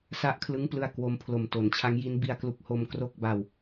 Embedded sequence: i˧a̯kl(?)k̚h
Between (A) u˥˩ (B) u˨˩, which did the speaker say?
B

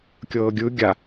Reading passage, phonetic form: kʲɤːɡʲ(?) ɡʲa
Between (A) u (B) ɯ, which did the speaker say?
B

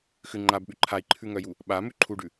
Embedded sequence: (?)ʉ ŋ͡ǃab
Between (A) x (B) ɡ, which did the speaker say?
A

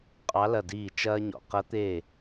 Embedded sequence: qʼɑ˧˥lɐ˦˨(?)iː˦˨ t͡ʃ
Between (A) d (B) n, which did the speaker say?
A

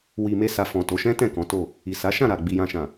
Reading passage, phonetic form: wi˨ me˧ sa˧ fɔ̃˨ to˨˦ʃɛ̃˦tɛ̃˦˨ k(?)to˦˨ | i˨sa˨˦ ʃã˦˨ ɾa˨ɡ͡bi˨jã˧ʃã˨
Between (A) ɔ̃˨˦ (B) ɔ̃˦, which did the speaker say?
A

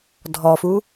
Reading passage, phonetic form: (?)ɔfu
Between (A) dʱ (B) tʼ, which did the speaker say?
A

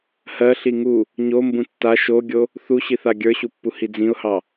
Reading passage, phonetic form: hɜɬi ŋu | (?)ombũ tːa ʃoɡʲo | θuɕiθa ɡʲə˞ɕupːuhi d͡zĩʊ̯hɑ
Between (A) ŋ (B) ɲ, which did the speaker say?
B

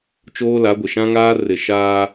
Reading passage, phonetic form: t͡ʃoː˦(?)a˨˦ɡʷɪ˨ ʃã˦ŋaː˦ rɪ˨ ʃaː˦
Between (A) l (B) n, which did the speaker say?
A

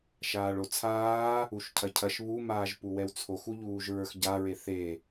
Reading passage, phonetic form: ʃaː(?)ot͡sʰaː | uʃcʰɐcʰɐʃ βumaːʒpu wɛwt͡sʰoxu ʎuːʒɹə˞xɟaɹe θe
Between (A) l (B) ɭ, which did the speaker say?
B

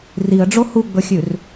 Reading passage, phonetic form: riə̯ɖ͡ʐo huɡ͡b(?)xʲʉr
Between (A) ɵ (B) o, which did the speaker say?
A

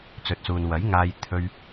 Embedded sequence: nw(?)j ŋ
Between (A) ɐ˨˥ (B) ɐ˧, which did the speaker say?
A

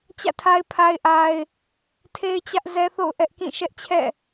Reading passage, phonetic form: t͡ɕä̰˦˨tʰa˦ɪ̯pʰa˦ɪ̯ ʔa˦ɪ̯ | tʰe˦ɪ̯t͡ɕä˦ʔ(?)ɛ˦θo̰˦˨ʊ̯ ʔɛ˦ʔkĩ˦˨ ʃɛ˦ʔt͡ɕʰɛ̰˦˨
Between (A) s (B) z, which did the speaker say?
B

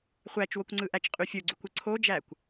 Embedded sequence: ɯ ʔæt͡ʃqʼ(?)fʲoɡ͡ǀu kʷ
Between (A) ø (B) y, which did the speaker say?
B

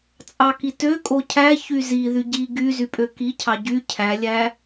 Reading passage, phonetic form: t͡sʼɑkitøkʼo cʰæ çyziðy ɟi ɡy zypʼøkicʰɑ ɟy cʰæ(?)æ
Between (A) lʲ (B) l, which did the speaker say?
A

